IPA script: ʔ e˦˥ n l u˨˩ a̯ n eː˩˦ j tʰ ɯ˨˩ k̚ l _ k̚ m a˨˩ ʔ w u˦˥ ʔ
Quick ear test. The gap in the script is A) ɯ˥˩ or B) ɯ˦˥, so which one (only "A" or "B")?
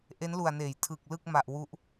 A